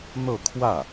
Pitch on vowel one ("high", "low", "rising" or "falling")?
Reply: falling